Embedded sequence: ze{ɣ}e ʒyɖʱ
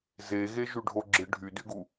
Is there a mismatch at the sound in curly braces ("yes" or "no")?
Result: no